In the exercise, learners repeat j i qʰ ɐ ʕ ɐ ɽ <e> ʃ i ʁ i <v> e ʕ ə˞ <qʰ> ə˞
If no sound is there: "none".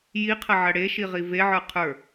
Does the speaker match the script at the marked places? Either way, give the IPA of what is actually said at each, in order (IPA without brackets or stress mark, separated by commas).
e, v, qʰ